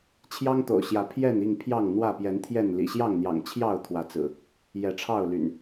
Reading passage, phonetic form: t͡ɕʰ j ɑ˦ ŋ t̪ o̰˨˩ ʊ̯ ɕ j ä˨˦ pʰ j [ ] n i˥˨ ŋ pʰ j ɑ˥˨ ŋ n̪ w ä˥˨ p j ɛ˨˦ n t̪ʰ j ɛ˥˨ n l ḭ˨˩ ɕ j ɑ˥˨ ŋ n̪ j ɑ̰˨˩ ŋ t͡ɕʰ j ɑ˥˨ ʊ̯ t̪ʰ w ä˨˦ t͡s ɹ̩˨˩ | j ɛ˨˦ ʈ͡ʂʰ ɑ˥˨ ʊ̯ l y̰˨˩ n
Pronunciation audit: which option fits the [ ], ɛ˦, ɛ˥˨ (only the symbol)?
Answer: ɛ˥˨